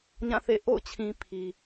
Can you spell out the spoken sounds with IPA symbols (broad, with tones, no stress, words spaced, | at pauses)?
ɲã˦˨θḛ˦˨ ʔo̰˦˨ʊ̯t͡ɕʰĩ˨ pʰi˨